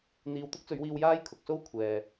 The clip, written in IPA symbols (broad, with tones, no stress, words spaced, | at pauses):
n̪iː˨wt̪ʊ˥k̚t͡sɵ˨˧ɥwiː˧w jaː˥jkʰʊ˨k̚ so˥wkʷʰɛː˨